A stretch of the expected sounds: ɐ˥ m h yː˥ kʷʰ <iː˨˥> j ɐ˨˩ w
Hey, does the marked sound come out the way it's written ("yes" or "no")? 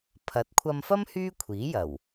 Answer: yes